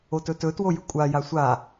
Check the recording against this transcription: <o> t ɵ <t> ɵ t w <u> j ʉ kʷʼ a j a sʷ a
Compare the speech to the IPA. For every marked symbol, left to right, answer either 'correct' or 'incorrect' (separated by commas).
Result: correct, correct, incorrect